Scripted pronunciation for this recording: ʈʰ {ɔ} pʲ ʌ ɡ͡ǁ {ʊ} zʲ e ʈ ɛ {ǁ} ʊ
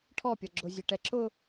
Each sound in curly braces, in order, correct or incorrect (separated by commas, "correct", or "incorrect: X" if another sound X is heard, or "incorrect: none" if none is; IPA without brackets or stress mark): correct, correct, correct